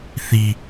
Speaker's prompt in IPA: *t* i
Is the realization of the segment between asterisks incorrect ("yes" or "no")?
yes